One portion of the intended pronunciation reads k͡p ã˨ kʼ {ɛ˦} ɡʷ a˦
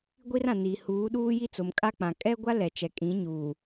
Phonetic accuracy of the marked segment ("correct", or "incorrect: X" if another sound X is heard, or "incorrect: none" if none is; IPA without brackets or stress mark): correct